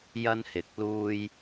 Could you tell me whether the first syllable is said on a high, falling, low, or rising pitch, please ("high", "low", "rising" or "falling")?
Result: high